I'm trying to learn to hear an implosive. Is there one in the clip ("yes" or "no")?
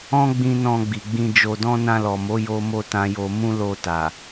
no